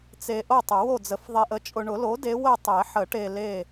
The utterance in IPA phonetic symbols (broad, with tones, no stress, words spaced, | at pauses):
t͡se˨ ʔo˥˨tˤʊ˨˩˦wo˥˨d͡zə˨˩˦f ðˤe˨ʔə˩˥ t͡ʃʼʊ˨ɳʊ˨˩˦lo˩˥ de˧˥ wə˥˨ tˤe˨˩˦ħə˨˩˦ʈe˨ le˥˨